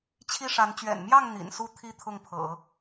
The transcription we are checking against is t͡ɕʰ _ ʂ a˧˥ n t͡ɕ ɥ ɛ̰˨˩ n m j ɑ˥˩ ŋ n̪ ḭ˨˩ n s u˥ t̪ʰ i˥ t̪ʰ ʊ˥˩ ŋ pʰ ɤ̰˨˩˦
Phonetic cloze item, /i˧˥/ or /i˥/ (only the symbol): i˥